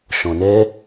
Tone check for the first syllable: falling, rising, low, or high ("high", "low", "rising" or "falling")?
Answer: low